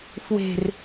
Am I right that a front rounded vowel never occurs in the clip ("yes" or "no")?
yes